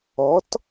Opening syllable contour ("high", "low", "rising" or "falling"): rising